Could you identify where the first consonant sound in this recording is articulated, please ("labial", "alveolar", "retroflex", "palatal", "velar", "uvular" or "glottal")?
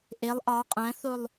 glottal